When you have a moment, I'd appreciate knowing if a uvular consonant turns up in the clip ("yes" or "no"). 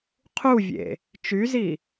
yes